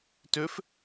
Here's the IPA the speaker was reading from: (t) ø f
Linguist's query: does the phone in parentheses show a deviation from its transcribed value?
no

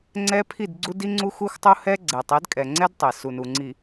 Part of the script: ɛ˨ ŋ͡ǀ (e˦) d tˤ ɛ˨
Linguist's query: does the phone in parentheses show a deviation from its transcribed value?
yes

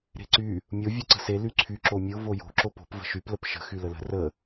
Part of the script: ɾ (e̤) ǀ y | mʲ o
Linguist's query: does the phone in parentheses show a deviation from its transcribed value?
no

